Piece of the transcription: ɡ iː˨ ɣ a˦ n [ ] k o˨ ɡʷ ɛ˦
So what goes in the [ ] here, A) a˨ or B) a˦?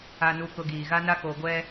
B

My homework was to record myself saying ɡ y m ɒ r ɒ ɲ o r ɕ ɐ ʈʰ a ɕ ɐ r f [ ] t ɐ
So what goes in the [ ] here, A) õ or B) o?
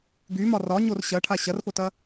B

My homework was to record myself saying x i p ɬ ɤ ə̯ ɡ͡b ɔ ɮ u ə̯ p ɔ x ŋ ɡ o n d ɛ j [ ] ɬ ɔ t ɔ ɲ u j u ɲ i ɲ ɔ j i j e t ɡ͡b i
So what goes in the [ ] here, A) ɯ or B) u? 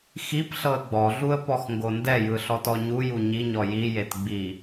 A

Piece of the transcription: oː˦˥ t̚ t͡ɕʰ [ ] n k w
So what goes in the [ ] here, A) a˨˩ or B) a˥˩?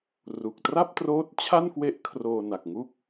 B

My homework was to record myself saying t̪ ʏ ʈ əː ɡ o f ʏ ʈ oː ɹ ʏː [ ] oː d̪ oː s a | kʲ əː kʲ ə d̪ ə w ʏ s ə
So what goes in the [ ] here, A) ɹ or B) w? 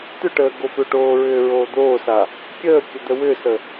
A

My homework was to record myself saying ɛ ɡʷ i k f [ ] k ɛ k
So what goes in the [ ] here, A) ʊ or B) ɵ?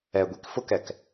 A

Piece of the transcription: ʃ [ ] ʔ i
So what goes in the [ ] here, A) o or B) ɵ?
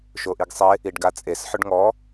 A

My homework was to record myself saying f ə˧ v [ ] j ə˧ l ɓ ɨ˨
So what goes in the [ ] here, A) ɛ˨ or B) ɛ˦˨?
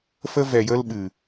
A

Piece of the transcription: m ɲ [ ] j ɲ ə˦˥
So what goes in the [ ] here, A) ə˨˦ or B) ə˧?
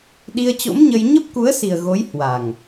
B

